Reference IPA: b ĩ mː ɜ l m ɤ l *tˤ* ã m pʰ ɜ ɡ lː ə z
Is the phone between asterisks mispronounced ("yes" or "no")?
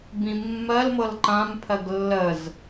yes